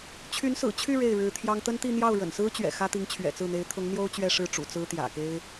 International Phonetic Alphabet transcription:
t͡ɕʰ y˧˥ n s ɹ̩˨˩ t͡ɕʰ y˥˧ ɻ e˥˩ ɪ̯ ɻ ɻ̩˧˥ t̪ʰ j ɑ˥ ŋ t̪ ə˥ n t̪ i˥˧ n̪ j ɑ˥˩ ʊ̯ ɻ ə̰˨˩ n s ɹ̩˥ t͡ɕ ɥ ɛ̰˨˩ x ä˥ t̪ i˧˥ ŋ t͡ɕʰ ɥ ɛ̰˨˩ t͡s ɹ̩˥˩ n̪ e˧˥ ɪ̯ t̪ʰ ʊ˧˥ ŋ n̪ j o˥ ʊ̯ t͡ɕ ɥ ɛ˥˧ ʂ ɻ̩˥˩ ʈ͡ʂ ṵ˨˩ t͡s ɹ̩˥ t̪ j ä̰˨˩ k e˥ ɪ̯

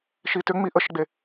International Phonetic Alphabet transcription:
ʃ i t ʏ ŋ͡m i ʔ ə ʃ ɡ͡b e

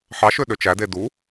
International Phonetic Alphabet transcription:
ħ ɑ ʃ ø ɗ ø t͡ʃ æ d e d u

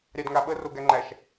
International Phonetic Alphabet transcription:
ɾʲ ɑ d ŋ a ɓ ə r o ɡ æ ŋ͡ǃ æ ʃ

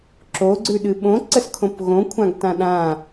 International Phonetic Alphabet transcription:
ǁ o ɡ͡ǀ ʉ ɗ ɨ ɓ õ ǀ ə s kʰ õ p ɣ õ kʷʰ ã ɡ t ã ɗ ã

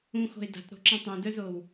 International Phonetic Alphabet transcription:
ũ x o̤ ɪ̯ d a̤ t ɾ o̤ ǁ ɛ̃ tˤ ũ d œ z o w

